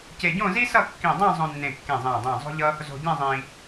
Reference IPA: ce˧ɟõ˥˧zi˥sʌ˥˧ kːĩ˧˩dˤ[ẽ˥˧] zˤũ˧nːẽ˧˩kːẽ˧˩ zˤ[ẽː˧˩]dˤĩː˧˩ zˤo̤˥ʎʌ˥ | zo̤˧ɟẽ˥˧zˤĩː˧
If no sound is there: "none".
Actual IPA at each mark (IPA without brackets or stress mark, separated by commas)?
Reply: ẽ˥˧, ẽː˧˩